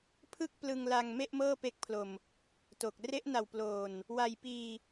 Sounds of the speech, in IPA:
pʰ ɯ˥˩ k̚ p l ɯ˧ ŋ l a˧ ŋ m e˥˩ ʔ m ɤː˥˩ p e˦˥ k̚ pʰ l o˨˩ m | t o˨˩ k̚ r e˦˥ ʔ n a˨˩ w p l oː˨˩ n | w a˧ j p iː˧

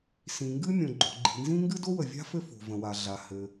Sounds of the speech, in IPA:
s ĩ˩ ŋ ɡ ɨ˥ mʲ õ˩ ɡ͡ǃ o̤˩ ɡ͡ǃ i̤˩ n z ĩ˥ ŋ ɡ ɨ˥ d o˥ w ə˩ vʲ a̤˥ f ɘ˥ f o̤˩ v ə̃˩ w a˩ ɮ a˩ h ɘ˩

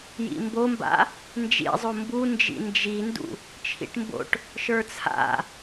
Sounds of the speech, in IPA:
j ḭ m b o m b a̰ | n d͡ʒ ḭ zˤ o m b u n d͡ʒ ḭ n d͡ʒ i n d ṵ | t͡ʃʰ ḭ ʈ m b o̰ ʈ | ʃ ə˞ t͡sʰ a̰

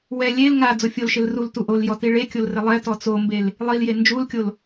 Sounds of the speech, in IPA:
w ɛ lʲ e l ŋ a d͡z o fʲ o l ʃ ɪ l r u l t u ʔ o l j ɔ t i ɭ e kʲ o l r ɪ lˠ ɛ t ɔ t͡s o m b e l | lˠ i l j e n d͡ʒ u l kʲ o l

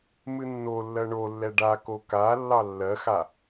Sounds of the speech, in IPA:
m ɨ nː o lː ɜ ɳ o lː ɛ ɖ a k o k a lː ɑ lː ɜ x a

